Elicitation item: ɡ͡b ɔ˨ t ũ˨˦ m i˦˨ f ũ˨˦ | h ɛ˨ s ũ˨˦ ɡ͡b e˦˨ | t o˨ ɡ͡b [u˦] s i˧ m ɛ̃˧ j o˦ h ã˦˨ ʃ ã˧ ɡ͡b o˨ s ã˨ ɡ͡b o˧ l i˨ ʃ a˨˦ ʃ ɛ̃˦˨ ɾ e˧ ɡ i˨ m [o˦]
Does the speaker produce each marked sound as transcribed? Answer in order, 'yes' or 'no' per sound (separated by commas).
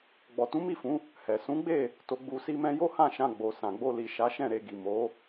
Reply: no, no